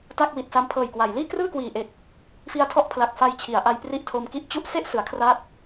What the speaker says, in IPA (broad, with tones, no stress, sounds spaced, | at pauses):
t a˥˩ k̚ w i˨˩ t̚ s a˧ m pʰ ɤː˨˩ j k w a˩˦ j l iː˥˩ k r ɯː˥˩ k w iː˨˩ ʔ e˨˩ k̚ | f i˧ a̯ tʰ ɔ˦˥ ʔ pʰ l a˨˩ k̚ f a˧ j t͡ɕʰ i˩˦ a̯ ʔ a˧ j p r i˦˥ ʔ tʰ o˧ m k i˦˥ ʔ t͡ɕ u˥˩ ʔ s e˥˩ ʔ s ɯ˩˦ a̯ kʰ r a˦˥ t̚